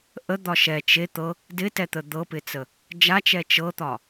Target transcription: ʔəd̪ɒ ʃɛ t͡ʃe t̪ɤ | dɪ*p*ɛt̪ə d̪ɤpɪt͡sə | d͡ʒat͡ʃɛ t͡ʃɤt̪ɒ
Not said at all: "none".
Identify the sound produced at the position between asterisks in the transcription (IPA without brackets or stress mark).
t